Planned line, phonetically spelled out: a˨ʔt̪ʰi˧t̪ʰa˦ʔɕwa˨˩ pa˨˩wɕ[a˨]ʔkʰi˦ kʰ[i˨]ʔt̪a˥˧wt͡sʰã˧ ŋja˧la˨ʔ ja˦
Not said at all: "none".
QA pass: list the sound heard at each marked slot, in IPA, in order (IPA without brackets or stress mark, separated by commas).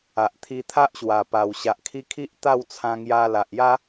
a˨, i˦